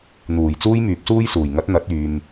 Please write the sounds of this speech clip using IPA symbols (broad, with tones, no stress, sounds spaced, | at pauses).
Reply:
n̪ uː˨˩ j t͡s uː˥ j m yː˨˥ p̚ s uː˥ j s uː˨˩ j ŋ ɐ˨˥ t̚ n̪ ɐ˨˥ t̚ yː˨ m